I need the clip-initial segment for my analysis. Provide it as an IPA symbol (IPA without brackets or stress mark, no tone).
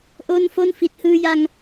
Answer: ʔ